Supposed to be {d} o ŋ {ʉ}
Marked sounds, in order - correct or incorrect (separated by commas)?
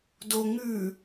correct, correct